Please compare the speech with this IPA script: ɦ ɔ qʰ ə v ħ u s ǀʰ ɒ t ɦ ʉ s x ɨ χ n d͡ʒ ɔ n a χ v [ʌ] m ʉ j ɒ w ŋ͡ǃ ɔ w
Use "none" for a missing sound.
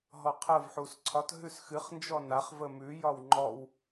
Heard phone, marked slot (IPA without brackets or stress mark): ə